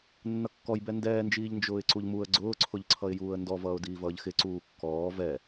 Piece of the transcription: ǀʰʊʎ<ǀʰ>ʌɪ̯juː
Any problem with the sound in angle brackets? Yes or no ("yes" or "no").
no